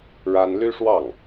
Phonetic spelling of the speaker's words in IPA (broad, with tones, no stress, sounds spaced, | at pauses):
ɻ a˥ n l y˥ ʂ w ɑ˥˩ ŋ